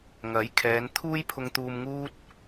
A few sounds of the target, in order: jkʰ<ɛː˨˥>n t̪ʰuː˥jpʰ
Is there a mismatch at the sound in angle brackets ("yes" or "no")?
yes